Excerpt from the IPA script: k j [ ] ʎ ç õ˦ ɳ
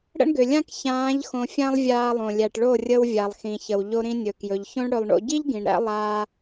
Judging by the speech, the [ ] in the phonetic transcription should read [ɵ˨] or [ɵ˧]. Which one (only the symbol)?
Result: ɵ˨